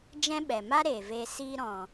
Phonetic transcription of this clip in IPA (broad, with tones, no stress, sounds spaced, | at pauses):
d͡ʒ ɛ̃˦ ɓ ɛ˨ m a˦ ɾ eː˨ v eː˧ s iː˧ ɾ ɔ̃˨